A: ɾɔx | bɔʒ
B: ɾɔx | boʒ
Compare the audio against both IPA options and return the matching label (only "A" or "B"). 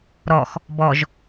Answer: A